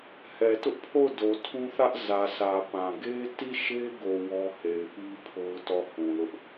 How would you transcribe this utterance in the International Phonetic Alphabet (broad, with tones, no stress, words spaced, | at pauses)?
hɛ˨tʊ˦ʔpʰo˦˨ʊ̯ do˨tʰũ˦θä˦ʔ zä˨sä˨ pã˨ ɡe˦ti˦˨ʃe˦ɡo˨ wɔ˦he˨ɪ̯ pi˦ pʰo˦ʊ̯tɔ˦˨hũ˨lʊ˦ʔ